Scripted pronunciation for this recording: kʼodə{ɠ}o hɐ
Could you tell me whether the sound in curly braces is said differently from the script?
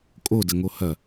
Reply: yes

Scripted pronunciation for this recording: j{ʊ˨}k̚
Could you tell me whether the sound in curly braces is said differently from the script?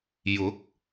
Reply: yes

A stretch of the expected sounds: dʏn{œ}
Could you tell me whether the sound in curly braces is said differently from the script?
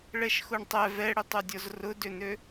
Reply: yes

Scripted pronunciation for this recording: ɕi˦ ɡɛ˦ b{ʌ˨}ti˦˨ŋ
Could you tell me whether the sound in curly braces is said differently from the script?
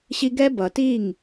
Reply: no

